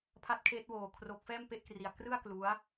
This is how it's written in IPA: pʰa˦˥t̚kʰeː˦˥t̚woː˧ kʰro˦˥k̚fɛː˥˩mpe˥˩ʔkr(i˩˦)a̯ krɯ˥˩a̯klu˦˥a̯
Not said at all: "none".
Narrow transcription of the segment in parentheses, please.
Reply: i˧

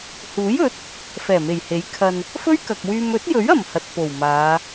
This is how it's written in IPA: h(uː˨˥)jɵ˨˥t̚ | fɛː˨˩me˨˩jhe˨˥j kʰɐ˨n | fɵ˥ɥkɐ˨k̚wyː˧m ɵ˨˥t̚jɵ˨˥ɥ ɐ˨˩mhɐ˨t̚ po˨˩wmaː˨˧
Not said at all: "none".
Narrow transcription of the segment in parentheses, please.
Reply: uː˨˥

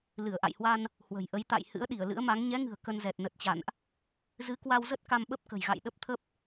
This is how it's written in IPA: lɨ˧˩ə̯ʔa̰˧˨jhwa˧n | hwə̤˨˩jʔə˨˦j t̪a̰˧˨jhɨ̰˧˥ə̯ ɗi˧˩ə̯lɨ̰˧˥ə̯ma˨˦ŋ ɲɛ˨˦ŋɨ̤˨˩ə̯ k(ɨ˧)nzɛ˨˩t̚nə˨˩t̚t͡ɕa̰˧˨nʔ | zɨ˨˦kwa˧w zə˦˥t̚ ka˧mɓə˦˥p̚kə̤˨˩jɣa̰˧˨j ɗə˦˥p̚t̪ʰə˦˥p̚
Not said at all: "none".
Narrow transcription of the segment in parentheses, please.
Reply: ə˧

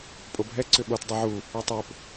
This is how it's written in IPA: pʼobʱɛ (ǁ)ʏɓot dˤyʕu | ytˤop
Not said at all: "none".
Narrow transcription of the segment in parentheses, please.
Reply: ǀ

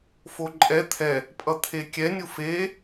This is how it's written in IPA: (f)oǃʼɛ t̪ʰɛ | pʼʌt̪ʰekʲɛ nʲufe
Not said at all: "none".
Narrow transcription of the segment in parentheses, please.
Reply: f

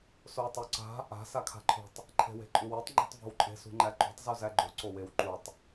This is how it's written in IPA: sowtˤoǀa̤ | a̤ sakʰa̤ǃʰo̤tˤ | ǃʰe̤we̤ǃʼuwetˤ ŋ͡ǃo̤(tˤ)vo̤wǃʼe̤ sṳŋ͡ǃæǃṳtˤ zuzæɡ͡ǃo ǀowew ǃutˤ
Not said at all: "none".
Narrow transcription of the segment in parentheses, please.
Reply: tˤ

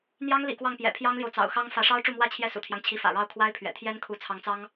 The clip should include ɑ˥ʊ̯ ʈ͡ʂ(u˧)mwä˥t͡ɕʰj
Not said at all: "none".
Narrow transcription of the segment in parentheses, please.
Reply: u˥˩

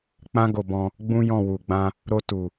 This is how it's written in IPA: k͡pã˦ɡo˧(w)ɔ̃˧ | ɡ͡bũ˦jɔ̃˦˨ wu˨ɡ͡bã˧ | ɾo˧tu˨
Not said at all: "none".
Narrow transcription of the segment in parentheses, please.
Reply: b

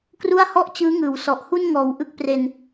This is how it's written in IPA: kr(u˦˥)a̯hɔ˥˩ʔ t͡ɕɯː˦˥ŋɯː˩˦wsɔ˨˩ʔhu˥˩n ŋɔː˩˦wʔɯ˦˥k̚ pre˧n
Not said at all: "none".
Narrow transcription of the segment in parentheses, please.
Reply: u˥˩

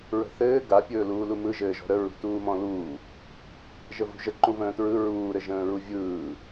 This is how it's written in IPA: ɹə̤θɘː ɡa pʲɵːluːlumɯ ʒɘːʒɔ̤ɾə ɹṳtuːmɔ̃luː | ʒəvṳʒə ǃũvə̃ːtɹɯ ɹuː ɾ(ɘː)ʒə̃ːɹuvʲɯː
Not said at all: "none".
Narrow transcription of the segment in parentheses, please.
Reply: ɘ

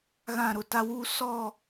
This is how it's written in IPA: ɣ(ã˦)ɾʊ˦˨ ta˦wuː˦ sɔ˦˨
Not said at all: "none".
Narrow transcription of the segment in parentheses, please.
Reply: ã˦˨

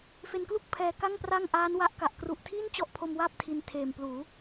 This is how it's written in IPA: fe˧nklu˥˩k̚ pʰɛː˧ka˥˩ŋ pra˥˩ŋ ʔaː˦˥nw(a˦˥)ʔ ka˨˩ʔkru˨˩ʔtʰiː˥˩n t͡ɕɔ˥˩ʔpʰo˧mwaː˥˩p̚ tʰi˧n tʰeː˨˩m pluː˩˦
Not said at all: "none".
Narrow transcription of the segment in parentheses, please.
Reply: a˦˥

